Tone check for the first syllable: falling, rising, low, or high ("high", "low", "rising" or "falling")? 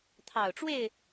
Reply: low